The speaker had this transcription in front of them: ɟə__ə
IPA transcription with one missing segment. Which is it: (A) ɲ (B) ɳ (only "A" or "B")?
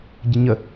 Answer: A